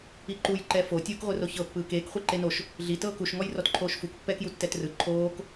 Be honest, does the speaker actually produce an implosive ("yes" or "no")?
no